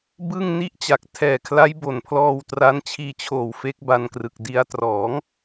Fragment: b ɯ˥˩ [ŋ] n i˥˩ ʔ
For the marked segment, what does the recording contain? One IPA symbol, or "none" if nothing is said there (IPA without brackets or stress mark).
ŋ